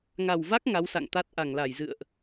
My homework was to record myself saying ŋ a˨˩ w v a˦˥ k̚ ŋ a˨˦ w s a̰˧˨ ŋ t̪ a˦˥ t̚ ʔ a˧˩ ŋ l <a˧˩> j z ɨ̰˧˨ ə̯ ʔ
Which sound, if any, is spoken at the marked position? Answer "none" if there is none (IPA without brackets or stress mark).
a˧˩